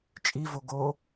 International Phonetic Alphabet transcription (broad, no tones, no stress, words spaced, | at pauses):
t͡ʃʼivo ɡo